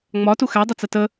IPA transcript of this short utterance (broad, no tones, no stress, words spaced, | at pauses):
ŋ͡mɒtu xædˤət͡sə tə